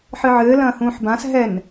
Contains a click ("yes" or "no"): no